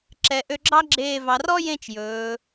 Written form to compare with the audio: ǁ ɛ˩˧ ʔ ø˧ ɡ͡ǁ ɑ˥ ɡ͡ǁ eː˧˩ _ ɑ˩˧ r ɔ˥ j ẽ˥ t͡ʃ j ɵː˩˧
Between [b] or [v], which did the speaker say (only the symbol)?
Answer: v